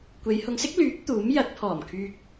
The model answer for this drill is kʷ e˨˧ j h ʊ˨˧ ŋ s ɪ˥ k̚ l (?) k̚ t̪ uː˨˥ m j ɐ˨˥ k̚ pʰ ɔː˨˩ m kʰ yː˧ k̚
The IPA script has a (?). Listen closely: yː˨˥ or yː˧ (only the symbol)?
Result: yː˨˥